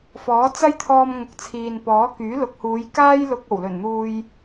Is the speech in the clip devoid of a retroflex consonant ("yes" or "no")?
yes